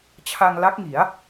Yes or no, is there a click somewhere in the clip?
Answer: no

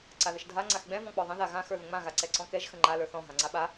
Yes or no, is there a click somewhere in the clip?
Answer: yes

